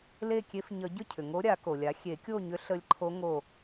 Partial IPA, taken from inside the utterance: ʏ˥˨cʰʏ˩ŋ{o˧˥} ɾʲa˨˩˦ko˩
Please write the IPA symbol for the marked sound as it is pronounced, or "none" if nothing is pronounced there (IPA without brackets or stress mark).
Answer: o˧˥